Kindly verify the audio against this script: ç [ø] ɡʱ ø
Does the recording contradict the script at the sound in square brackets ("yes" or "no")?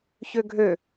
no